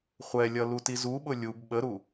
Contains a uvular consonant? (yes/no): yes